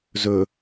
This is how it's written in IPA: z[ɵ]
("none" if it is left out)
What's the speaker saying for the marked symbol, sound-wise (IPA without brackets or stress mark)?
ɵ